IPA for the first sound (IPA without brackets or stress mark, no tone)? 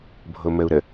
bʱ